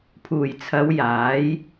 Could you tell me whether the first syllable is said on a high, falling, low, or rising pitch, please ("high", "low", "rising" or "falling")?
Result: low